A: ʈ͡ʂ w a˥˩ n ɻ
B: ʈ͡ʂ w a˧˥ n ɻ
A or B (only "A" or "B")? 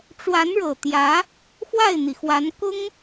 B